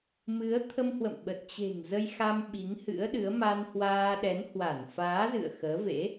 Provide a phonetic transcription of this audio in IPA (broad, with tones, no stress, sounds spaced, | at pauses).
m ɨ˨˦ ə̯ t̪ʰ ə˧ m h w ə̰˧˨ m ɓ ə˨˩ t̚ t͡ɕ e̤˨˩ ŋ z ə˧ j x a˧ m ɓ i˨˦ ŋ h ɨ̰˧˥ ə̯ ɗ ɨ˨˦ ə̯ m a˧ n h w aː˧ ɗ ɛ˨˦ n h w a˧˩ n f aː˨˦ z ɨ̰˧˨ ə̯ x əː˨˦ v ḛ˧˥